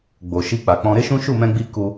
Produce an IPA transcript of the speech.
ɡ͡b o˨ ʃ i˧ k͡p a˨ k͡p ɔ̃˧ ɾ e˦ ʃ ũ˦ ʃ u˦˨ m ɛ̃˧ ɡ͡b i˧ k u˧

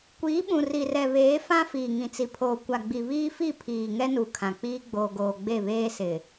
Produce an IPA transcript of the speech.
kʷ iː˨˦ ɓ ũ˨ r i˨ r ɛ˨ β eː˨˦ f ã˦ f iː˨ ŋ ĩ˨ t͡s i˨ pʰ oː˨ kʷ a˨ ɡ͡b i˨ β iː˦ f i˦˨ pʰ iː˨ ŋ ɛ˦ n u˨ kʰ ã˨ k͡p iː˦ ɡ͡b oː˨ ɡ oː˨ ɡ͡b e˦˨ β eː˦ s ɪ˨

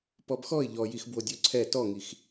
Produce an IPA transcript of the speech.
p ɔ b x ɔ ɪ̯ ʎ ɔ j i x b w o dʲ o ǀʰ ɛ t ɔ ŋ i x

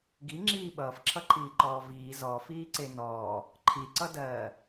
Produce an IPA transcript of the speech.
ɡ i ŋ͡ǁ iː ɓ ʌː f ǁʰ ʌ ǃʰ iː ǃ ɔː v iː z ɔ f iː ǀ e n ɔː | ǃʰ i ǀ ʌ d ɜː

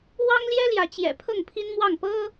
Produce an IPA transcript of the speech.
w ɑ˦ ŋ l j ɛ˦ l j ä˨˦ t͡ɕ j ɛ̰˨˩ pʰ ɤ˥˨ ŋ pʰ i˦ n m w ɑ˥˨ ŋ p ɤ˦

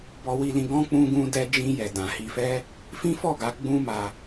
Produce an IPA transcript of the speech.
b ɔ˧ w i˧ l ĩ˧ ɡ ɔ̃˦ k͡p ũ˧ ɡ ũ˧ d ɛ˧ d͡ʒ ĩ˧ j ɛ˨ d ã˨ h i˧ f ɛ˦ | f ĩ˦ f ɔ˦˨ ɡ a˧ ɡ͡b ũ˦ m a˧

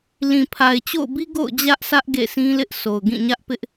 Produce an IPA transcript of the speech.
l ĩ˨ pʰ a˨ ɪ̯ t͡ɕ o̰˦˨ ʊ̯ b i˦ ɡ o̰˦˨ ʊ̯ d͡ʑ ä˦ ʔ sʰ ä˦ ʔ ɡ ḛ˦˨ sʰ ĩ˦ l ɪ˦ ʔ s o˨ ʊ̯ ɡ ĩ˦˨ ɲ ä˦ ʔ p ɪ˦ ʔ

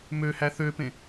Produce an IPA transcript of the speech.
m ø h æ θ ø p ẽ

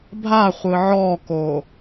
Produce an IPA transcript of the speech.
bʱ a χʷ ɯ ʕ ɔ k o

